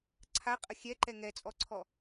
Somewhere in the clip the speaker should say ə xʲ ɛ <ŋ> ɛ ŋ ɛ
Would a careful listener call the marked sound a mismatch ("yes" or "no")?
yes